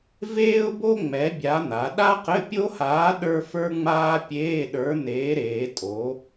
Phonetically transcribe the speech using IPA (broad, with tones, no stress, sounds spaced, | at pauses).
v eː˥ ʊ̯ b o˥ ŋ͡m ɛ˨˥ bʲ a˨˥ n̪ a˩˧ ɗ a˥ q ɘ˧˥˧ pʲ o˥ h aː˨˥ ɗ ə˞˥ f ə˞˥ ŋ͡m aː˥ pʲ eː˧˥˧ ɗ ə˞˨˥ n eː˨˥ ɾ eː˩˧ tʼ o˩˧